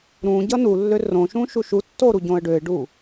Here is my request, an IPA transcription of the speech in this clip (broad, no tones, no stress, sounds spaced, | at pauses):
ɾ ũ ɟ ʌ n u lː ø r õ ʃ ũ ʃ u ʃ u tː o ɾ u ɟ õ ə̯ ɖ ø ɪ̯ ɖ u